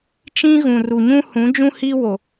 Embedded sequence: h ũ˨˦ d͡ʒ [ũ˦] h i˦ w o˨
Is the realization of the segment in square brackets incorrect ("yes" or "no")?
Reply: no